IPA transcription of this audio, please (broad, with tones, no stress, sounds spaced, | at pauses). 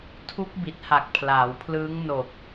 tʰ u˦˥ k̚ b i˨˩ t̚ h a˨˩ k̚ pʰ l aː˩˦ w pʰ l ɯː˦˥ ŋ n o˨˩ k̚